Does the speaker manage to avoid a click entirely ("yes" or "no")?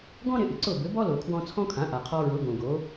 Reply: no